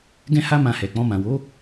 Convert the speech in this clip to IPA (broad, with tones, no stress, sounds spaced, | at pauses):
ɡ ɛ̃˦ h a˦ m ã˧ h ɛ˨ k͡p ɔ̃˧ m ã˨ w o˨˦